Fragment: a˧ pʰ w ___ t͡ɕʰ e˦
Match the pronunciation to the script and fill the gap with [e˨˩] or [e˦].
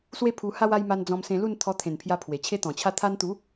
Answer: e˨˩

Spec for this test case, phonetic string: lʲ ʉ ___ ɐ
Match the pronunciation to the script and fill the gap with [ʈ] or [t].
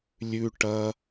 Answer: ʈ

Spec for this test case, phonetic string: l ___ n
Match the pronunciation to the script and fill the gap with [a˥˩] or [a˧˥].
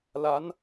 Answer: a˧˥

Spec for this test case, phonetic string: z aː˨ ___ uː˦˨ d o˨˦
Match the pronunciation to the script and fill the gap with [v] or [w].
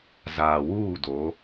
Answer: w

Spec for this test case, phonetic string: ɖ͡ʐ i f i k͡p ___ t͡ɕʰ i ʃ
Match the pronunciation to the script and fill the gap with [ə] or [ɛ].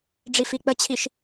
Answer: ə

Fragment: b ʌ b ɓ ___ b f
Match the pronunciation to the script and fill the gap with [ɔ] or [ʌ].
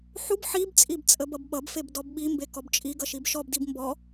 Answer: ʌ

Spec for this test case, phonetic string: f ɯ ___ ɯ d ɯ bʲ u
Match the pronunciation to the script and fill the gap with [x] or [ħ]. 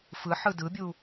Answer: ħ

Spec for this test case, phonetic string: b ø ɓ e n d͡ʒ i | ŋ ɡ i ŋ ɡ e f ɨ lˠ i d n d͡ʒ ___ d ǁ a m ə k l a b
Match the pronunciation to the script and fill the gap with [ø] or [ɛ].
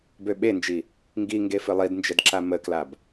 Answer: ɛ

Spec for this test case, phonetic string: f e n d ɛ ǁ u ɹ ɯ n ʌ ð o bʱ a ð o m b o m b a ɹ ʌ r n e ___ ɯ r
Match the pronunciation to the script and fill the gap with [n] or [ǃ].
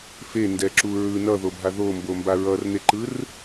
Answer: ǃ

